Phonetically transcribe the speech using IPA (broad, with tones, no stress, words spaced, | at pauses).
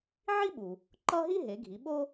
ʕi˥ɓu˩ | ǃʌ˥ ɦi˥ɦe˩˧ɡʱi˩˧ ɓo˥